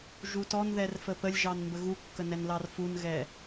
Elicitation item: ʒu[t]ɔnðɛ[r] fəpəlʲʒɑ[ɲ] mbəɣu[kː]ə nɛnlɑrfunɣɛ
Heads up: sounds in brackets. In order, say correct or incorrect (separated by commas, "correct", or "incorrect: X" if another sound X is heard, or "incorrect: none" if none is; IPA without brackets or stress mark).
correct, correct, incorrect: n, correct